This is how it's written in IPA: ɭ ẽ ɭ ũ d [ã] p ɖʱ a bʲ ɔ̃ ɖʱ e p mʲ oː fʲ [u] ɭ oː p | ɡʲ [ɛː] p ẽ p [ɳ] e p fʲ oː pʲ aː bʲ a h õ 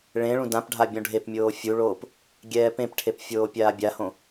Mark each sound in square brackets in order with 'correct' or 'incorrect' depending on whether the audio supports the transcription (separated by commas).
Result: correct, correct, correct, incorrect